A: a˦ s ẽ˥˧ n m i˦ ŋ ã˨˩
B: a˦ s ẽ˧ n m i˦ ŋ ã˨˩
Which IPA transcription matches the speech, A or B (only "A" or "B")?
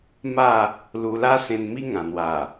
B